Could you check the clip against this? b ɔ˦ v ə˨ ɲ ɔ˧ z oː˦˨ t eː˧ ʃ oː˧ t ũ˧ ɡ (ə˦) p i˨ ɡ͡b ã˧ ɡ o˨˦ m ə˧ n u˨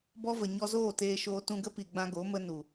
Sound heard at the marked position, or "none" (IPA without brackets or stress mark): ə˦